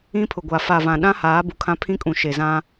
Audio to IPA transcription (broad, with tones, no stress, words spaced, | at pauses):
ĩ˦pʰʊ˨ɡʷa˨ fa˨vã˨ ɗã˦haː˨˦ bu˨kʰã˦pʰĩ˦kʼũ˨ ʃe˨zã˦